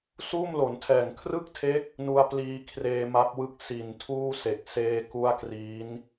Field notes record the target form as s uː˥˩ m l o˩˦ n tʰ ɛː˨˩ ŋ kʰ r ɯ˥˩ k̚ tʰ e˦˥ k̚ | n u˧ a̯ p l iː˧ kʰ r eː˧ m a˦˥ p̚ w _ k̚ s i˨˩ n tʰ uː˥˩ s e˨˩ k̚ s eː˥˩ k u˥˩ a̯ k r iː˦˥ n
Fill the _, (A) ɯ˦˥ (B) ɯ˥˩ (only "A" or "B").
B